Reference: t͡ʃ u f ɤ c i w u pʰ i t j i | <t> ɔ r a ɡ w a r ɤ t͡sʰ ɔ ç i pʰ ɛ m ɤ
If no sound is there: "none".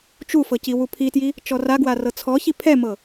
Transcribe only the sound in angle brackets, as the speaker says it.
t͡ʃ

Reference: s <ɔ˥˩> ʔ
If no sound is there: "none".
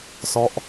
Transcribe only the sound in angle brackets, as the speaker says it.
ɔ˦˥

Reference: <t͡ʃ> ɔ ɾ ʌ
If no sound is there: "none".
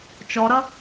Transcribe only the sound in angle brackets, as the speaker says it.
t͡ʃ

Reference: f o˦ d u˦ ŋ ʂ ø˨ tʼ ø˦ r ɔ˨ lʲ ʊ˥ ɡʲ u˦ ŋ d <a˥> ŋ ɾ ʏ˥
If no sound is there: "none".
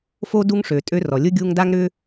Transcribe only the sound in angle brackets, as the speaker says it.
a˥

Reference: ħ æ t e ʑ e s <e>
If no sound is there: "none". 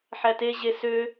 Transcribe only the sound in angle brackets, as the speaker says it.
ø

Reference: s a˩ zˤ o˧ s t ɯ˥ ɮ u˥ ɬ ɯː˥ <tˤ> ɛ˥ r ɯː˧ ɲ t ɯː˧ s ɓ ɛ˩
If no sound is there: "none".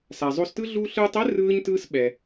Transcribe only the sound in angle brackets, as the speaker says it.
tˤ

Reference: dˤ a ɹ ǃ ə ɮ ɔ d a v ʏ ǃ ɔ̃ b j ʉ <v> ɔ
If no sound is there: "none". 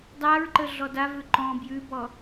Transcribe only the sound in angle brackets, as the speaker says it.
b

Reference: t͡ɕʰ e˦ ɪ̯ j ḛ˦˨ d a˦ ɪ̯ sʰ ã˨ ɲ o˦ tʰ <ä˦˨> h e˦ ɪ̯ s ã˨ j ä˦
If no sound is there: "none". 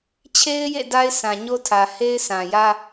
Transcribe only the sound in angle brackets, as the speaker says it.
ä˨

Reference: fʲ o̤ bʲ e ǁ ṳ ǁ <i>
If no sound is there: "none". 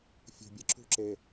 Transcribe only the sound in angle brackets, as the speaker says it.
e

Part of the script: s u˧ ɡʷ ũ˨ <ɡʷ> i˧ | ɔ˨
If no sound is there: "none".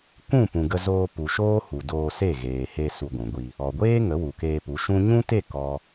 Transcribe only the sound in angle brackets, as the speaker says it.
ɡʷ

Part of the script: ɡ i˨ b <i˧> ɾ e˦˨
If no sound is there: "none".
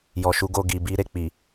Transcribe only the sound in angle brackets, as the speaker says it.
i˨˦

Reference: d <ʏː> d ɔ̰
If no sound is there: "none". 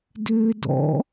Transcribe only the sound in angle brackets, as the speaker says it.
ʏː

